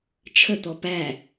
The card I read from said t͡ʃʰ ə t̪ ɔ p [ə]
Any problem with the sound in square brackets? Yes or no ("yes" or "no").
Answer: yes